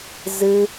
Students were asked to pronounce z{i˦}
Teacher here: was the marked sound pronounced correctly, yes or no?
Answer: no